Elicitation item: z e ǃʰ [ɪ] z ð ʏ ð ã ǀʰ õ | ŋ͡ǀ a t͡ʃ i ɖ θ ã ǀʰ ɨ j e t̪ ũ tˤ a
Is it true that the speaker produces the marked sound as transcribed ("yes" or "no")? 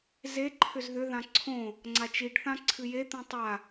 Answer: no